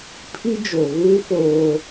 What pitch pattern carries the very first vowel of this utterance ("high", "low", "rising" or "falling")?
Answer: high